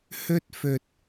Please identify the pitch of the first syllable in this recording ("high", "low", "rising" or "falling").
high